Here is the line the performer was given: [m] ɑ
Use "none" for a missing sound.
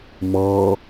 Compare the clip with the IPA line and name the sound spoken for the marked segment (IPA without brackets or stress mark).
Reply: m